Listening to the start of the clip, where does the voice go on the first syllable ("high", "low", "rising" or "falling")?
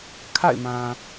falling